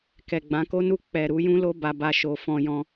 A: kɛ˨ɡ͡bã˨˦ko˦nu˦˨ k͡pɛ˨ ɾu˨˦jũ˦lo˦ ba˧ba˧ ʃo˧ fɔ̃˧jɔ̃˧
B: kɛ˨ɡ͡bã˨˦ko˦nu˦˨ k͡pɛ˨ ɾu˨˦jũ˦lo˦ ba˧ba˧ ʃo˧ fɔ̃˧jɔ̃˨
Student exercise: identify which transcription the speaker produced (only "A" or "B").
A